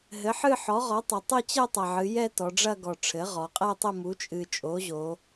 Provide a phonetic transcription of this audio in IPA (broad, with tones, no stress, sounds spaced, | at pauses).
ɦ ɘ˩˥ ħ ɨ˥˧ ħ ɔ˩˥ ʁ ɔ˩˥ tˤ ɐ˩˧ tˤ ɘ˥˧ t͡ɕ ɛ˥˧ tˤ ɐ˨˩ ʕ ɨ˩˧ j ɛ˥˧ t ɔ˩˧ ɖ͡ʐ ɐ˥˧ ɡ ɔ˨˩ ʈ͡ʂʰ ɘ˩˥ ʁ ɔ˩˧ qʼ ɛ˥˧ tˤ ɘ˥˧ m u˩˥ t͡ʃʼ ɨ˨˩ t͡ʃʼ o˩˥ ʑ o˩˧